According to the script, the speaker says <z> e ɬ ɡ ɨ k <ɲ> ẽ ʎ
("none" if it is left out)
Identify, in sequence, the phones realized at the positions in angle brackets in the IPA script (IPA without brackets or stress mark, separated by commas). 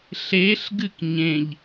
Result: ɬ, ɲ